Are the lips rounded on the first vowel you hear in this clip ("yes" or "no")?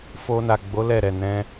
yes